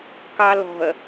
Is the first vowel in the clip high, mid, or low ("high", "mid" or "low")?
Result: low